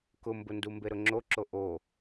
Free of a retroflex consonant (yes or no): yes